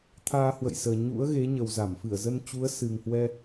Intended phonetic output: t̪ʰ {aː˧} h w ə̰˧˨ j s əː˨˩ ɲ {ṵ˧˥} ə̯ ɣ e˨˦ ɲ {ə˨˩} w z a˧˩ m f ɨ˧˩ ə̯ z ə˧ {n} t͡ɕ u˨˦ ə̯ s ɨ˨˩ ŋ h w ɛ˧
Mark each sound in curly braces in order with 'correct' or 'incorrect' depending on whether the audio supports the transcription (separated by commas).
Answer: correct, correct, correct, correct